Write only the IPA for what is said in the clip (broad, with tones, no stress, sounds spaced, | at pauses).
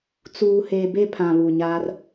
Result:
t͡s uː˨ h eː˨ b e˦˨ pʰ ã˨ β u˨ ɲ a˦ r